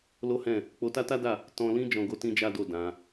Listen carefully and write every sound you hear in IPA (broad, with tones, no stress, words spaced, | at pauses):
lo˦hɛ̃˦˨ | k͡po˧ta˦ta˦da˦˨ | tɔ̃˧lĩ˦ d͡ʒɔ̃˧ɡo˦ tĩ˦d͡ʒa˦do˦˨ dã˨˦